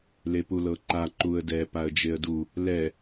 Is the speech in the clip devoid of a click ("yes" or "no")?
no